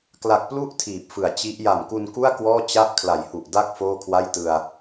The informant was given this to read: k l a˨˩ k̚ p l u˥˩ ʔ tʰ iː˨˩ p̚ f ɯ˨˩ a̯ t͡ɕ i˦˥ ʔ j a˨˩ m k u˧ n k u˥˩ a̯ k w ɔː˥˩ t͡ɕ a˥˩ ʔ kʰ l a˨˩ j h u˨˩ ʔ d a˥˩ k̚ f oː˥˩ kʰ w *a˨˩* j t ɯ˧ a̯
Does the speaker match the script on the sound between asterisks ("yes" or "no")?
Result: no